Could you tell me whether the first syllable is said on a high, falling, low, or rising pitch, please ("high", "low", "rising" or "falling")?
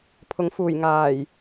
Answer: rising